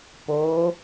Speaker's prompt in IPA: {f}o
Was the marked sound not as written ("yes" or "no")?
yes